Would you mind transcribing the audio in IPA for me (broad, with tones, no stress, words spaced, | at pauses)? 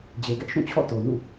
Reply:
d͡ʑe˨ɡɛ˦ʔ ʃũ˦˨t͡ɕʰɔ̰˦˨ to˨ nṵ˦˨